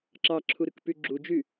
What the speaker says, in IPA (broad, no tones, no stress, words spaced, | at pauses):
ǁɑǁʰuɾɯkpy ɡ͡ǁud͡ʒy